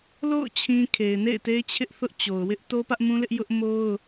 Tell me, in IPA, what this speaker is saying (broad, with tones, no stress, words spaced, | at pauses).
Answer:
lo̰˦˨ʊ̯ t͡ɕʰĩ˦ kʰe˨ɪ̯nḛ˦˨ɪ̯ te˦ɪ̯t͡ɕʰɪ˦ʔθʊ˦ʔt͡ɕo˨ʊ̯ wɪ˦ʔ to˦pä˦ʔmũ˦lɪ˦ʔ jʊ˦ʔmo˦ʊ̯